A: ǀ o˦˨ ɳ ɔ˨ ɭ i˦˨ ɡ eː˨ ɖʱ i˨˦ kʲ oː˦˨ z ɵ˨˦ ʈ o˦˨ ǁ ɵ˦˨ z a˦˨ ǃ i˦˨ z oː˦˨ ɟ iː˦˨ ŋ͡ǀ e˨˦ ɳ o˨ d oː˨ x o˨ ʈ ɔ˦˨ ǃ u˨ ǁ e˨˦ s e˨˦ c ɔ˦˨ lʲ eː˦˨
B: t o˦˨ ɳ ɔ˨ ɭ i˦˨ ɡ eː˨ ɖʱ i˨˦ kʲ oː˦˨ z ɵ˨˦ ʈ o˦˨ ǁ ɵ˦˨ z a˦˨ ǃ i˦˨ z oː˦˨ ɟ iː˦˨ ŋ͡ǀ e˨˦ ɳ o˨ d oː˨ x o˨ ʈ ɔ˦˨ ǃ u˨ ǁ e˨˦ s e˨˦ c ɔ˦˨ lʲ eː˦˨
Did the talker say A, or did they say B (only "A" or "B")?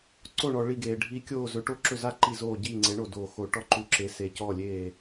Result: A